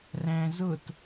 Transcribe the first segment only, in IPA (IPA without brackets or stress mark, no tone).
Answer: r